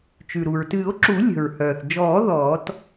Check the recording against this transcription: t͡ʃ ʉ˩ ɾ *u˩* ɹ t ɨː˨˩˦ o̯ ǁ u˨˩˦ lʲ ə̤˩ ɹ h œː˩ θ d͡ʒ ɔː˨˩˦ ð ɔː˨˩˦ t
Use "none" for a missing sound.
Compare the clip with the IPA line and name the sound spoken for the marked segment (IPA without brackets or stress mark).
u˩